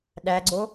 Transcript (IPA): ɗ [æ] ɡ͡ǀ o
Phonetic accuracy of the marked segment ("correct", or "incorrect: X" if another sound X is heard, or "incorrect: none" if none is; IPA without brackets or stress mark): correct